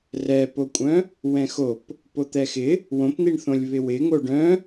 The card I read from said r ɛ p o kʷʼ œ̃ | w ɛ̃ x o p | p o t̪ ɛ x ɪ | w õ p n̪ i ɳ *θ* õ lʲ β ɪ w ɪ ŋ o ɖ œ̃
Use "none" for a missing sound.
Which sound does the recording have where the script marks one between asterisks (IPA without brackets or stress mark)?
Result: θ